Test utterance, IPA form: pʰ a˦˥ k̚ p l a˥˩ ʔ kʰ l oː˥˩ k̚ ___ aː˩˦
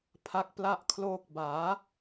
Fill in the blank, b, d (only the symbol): b